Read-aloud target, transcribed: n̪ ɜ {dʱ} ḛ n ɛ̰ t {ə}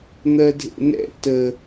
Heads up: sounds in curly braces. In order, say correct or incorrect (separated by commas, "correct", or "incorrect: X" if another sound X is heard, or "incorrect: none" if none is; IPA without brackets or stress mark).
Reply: correct, correct